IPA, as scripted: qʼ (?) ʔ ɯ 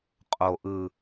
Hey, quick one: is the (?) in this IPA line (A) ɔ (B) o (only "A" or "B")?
B